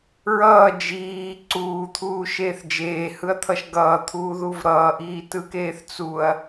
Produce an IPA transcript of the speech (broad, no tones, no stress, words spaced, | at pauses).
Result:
ɹʌː d͡ʒiː ǀuːt̪ʰuːʃeːθ d͡ʒeːhɯɐ̯t̪ʰʌʃ ɡʌːt̪ʰuːðuv ɾʌːʔiːtɯkeːθ t͡suɐ̯